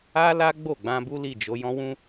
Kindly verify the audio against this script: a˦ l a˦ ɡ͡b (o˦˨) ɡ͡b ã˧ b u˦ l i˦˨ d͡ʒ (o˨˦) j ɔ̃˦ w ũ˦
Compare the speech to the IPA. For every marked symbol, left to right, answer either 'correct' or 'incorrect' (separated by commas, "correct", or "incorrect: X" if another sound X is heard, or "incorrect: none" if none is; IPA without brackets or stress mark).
correct, correct